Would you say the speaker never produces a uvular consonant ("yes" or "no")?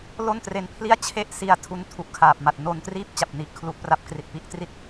yes